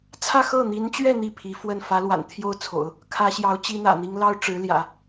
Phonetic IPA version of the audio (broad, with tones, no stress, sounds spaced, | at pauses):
t͡sʰ ä˥˧ x ɤ˥˩ n̪ i˧˥ n t͡ɕ ɥ ɛ˥˧ n̪ i˥˩ pʰ i˧˥ f w ə˥˩ n f ä˧˥ l w a̰˨˩ n t̪ʰ j o˥˩ ʊ̯ t͡sʰ o̰˨˩˦ ʊ̯ | kʰ ä˥ ɕ j ɑ˧˥ ʊ̯ t͡ɕ i˥ n̪ ä̰˨˩ n̪ i˥ ŋ l ɑ˥ ʊ̯ ʈ͡ʂ ɻ̩˧˥ l j ä̰˨˩˦